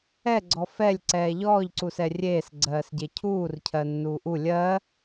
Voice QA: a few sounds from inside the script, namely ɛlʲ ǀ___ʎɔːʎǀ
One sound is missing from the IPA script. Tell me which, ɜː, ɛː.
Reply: ɛː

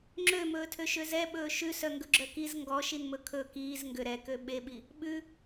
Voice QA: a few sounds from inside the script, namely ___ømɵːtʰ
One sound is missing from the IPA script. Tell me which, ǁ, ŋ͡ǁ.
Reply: ŋ͡ǁ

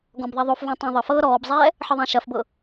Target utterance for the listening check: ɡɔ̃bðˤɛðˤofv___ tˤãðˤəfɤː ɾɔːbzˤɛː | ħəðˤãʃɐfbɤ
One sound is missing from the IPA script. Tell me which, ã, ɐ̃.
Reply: ã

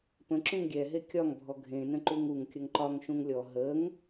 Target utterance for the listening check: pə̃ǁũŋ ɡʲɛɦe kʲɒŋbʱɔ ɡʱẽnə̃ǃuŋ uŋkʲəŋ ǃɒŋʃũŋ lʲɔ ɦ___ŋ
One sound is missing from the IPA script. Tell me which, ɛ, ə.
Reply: ə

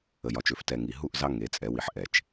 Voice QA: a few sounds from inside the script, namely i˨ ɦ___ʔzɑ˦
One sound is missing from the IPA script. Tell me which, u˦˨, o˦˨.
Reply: u˦˨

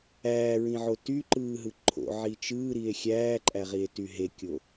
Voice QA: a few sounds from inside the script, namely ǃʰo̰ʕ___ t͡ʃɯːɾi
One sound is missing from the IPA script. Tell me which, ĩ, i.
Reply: i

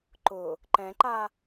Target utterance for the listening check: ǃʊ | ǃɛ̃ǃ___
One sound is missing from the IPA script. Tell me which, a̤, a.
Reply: a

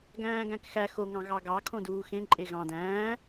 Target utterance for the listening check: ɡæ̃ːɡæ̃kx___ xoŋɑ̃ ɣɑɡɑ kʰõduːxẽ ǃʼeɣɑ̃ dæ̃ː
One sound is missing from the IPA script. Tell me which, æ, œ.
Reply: æ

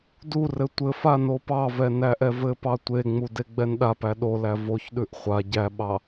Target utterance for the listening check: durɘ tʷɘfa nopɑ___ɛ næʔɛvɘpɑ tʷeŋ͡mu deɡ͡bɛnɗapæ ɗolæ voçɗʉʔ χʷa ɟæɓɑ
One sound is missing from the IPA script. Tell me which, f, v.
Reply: v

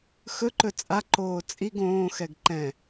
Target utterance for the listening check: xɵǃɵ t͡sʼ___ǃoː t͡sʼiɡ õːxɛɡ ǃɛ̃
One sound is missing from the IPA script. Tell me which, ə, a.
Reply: a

